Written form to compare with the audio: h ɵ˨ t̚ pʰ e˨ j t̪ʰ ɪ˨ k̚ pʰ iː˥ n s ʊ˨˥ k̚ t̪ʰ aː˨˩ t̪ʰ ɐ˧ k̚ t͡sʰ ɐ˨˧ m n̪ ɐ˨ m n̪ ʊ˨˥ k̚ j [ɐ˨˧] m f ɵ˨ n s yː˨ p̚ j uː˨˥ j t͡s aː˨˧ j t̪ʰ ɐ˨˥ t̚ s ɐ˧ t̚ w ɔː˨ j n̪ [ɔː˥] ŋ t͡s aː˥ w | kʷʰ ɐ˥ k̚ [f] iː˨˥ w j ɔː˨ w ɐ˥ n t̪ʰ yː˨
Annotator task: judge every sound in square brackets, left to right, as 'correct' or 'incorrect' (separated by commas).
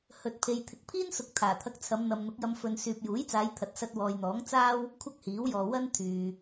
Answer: incorrect, incorrect, incorrect